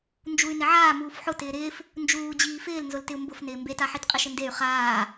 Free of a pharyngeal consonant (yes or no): no